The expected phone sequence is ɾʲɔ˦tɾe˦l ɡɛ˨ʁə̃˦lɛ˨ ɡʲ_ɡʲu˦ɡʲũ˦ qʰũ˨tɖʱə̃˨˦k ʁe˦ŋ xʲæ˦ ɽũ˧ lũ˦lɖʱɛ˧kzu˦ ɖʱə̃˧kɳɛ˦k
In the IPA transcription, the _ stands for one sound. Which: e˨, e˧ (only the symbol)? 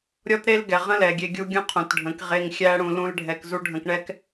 e˧